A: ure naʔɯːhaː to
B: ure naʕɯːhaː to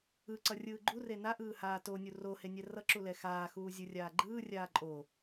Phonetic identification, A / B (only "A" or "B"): A